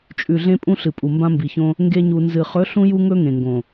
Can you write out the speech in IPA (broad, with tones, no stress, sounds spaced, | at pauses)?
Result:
t͡ʃʼ ʉ˨ ɮ ẽ˧ pʼ ũ˦ ɬ ɨ˨ pʼ u˨ m b ã˧ m b i˨ ç õ˧ | ŋ ɡ e˧ ɲ u˨ n z ɨ˨ χ ɵ˨˦ ɬ ũ˧ j u˧ ŋ ɵ˧ ŋ ẽ˨ ŋ ɡ õ˨